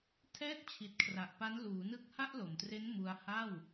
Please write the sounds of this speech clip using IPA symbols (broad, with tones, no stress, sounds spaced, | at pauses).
tʰ ɛː˥˩ t̚ t͡ɕʰ i˨˩ t̚ kʰ r a˨˩ ʔ p a˦˥ n l uː˩˦ n ɯ˥˩ k̚ h a˥˩ ʔ l o˨˩ m t r e˦˥ n m u˧ a̯ h a˥˩ w